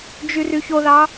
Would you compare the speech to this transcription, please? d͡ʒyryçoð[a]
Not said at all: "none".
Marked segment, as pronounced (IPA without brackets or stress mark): ɑ